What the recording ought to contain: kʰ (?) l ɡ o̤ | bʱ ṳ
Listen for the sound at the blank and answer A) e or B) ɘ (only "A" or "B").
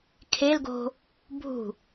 A